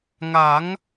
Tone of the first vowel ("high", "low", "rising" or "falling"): rising